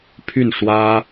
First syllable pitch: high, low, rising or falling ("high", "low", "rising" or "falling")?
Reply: falling